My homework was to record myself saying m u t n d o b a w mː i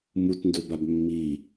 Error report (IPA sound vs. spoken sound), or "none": w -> b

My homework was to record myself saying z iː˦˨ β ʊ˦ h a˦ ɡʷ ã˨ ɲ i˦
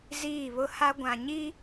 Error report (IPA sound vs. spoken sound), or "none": none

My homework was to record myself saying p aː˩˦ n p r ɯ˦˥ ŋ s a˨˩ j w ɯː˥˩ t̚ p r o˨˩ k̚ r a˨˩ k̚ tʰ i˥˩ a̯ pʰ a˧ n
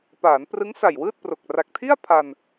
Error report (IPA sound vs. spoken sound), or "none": none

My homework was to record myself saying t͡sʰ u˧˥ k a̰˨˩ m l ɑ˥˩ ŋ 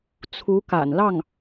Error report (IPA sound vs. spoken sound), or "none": m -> n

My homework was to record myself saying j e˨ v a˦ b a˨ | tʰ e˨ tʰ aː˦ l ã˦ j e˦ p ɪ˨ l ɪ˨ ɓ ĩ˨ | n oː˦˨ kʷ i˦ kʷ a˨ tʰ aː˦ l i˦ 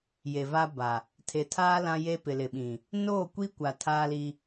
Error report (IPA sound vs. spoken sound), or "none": none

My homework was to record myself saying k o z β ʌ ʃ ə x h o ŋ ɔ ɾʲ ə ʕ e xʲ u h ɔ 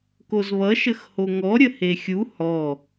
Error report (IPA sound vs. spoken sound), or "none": ʕ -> h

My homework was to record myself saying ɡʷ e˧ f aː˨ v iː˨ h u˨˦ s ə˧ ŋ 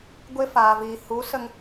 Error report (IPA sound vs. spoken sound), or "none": none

